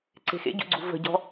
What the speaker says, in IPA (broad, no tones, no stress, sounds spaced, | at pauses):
ǀ e̤ x ḛ ɟ ṵ ɡ͡ǀ ṳ v ə̤ ɟ ɔ̤